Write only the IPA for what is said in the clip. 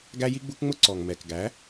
ɡ æ˦ j i˦ ɡ͡b u˦ k ŋ͡m ʊ˦ ǀ ɔ˨ ŋ m ɛ˨ k ɡ æ˨˦

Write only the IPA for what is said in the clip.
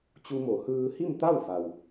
t͡ɕ u˧ m o˩˧ h ɯː˧ h i˥˨ m t̪ a˥˨ w f a˩ w

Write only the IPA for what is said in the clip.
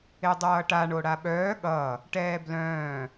e dˤ ʌː ʈ a ɳ o ɽ a ɓ œː ɠ ʌ | ʈ ɛː b l œ̃ː

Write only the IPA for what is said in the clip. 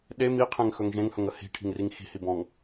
ɗ e m i qʰ ẽ ŋ x ɵ ŋ ʒ ẽ ŋ h ɵ ŋ ə h i̤ ʈʰ i̤ ŋ r i ŋ x i̤ h i b ɔ̃ ŋ

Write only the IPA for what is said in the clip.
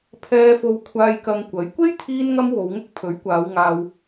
pʰ ɛː˧ f o˧ w kʷʰ aː˧ j k ɐ˧ ŋ kʷ ɐ˨˥ j kʷ e˥ j t̪ʰ iː˧ n ŋ ɐ˧ m w o˨˧ w ŋ ʊ˥ k̚ pʰ ɵ˨˥ ɥ kʷ aː˨˧ w ŋ aː˧ w

